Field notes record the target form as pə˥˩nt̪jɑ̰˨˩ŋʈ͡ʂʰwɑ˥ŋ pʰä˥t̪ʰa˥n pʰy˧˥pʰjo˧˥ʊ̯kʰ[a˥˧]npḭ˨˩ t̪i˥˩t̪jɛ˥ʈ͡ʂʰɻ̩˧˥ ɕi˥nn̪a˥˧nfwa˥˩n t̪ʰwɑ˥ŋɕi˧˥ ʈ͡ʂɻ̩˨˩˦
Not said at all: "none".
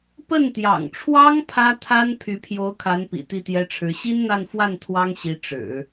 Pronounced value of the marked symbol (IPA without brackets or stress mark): a˧˥